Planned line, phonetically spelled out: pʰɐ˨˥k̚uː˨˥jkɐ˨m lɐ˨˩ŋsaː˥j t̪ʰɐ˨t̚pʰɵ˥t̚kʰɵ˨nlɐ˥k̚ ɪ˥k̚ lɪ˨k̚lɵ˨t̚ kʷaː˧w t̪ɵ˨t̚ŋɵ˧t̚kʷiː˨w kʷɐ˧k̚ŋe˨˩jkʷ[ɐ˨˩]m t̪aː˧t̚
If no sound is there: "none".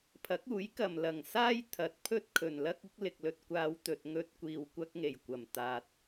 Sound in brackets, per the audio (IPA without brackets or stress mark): ɐ˨˩